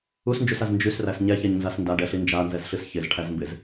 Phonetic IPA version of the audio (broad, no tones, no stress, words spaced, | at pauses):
usnd͡ʒusaz nd͡ʒysræs ɲɛçɛɲnzas ndaɖɛɬi nd͡ʒanzɛzɬɨs çɪzʈʰæzmbɪz